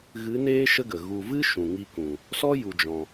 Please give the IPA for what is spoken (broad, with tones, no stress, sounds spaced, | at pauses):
ɣ ɨ˨˦ n eː˦ ʃ ə˦ ɡ ə˨ ɣ u˨ v ɨ˦ ʃ ũ˨ ŋ i˧ k ũ˨ | s ɔ˦ j u˨ d͡ʒ ɔ̃˨